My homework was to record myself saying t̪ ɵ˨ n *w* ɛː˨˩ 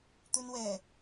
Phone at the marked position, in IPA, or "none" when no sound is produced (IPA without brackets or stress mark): w